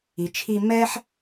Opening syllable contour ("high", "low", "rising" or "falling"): low